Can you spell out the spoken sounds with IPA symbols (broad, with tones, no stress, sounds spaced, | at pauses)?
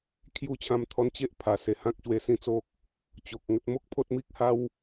kʰ j u˥˧ t͡ɕʰ ã˦ m t̪ʰ ɔ˦ n t͡ɕ e˦ ʔ pʰ a˨˩ s e˨˩ h ã˦ k̚ ɕ w e˧ s ĩ˥˧ t͡s o˦ k̚ | t͡ɕ o˨ k̚ ŋ ə˦ t̚ m o˦ k̚ pʰ o˦ t̚ m i˦ k̚ h a˦ w